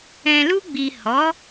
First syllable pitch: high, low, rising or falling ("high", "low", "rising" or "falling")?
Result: low